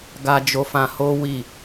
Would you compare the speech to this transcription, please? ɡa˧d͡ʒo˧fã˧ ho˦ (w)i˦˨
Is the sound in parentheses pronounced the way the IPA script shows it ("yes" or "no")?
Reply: yes